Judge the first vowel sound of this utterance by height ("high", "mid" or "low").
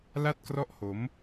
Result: low